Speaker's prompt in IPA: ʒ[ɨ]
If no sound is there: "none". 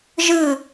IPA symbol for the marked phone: ɨ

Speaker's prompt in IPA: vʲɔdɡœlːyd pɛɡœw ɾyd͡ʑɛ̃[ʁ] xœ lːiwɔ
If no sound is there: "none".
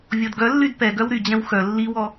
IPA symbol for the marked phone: w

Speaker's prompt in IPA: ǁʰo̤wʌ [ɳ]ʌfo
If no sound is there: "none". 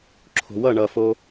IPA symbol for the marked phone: ɳ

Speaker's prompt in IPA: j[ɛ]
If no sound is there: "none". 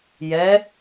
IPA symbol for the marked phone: ɛ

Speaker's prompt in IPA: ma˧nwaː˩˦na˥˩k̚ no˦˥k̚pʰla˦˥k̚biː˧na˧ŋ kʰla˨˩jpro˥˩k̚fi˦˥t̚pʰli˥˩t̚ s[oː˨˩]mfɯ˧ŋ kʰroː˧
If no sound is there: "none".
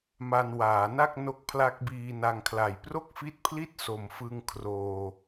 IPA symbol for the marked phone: o˨˩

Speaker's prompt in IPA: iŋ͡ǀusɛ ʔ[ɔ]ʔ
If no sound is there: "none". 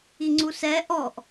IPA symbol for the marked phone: ɔ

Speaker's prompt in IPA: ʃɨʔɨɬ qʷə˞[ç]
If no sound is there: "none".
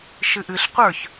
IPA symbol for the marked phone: ç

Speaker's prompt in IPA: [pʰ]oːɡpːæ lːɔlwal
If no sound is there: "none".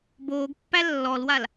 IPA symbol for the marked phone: b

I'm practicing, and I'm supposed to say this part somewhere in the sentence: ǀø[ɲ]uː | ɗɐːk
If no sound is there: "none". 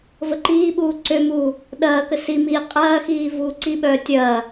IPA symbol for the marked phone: m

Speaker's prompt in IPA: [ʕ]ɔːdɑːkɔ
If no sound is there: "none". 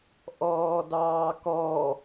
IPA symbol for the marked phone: ʔ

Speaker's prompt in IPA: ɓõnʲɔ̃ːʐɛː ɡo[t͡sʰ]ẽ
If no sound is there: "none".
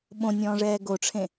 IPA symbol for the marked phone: ʈ͡ʂʰ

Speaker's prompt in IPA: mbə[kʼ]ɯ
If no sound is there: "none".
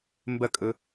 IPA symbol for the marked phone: kʼ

